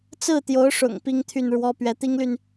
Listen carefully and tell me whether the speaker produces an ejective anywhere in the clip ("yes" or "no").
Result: no